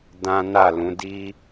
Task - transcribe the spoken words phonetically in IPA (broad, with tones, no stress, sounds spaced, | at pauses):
d ã˦ n a˦˨ l ũ˨˦ d i˦